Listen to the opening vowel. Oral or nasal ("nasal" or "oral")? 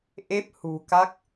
oral